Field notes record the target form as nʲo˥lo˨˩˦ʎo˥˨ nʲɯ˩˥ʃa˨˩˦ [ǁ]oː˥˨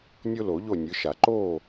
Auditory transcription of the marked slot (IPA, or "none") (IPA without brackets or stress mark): ǃ